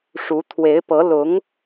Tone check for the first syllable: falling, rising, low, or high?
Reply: rising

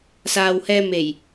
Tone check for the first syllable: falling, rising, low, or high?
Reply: low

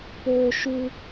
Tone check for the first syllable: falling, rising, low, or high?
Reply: high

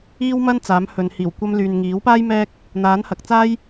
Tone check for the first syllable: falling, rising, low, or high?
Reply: high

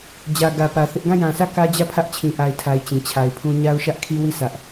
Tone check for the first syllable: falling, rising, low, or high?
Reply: low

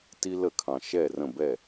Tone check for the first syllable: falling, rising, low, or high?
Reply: high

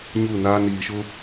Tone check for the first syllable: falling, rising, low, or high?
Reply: falling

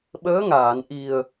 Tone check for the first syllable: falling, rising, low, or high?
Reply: rising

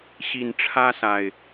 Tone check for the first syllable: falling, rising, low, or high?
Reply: low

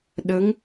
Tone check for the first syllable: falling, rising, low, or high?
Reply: rising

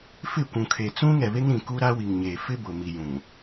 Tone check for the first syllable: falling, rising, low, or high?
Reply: falling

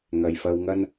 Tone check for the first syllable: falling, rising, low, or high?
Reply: low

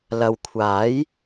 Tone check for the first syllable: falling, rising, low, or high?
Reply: low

